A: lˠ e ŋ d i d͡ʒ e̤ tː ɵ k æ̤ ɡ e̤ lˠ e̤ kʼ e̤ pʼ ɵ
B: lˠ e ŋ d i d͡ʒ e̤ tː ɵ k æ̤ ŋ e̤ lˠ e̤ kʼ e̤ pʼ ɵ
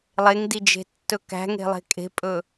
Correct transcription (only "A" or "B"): B